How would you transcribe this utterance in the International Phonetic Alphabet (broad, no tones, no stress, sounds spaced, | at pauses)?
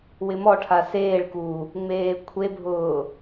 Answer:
w ɪ m ɔ ʈʰ a s eː ɭ k u | ŋ͡m eː kʷʰ e bʱ ʊː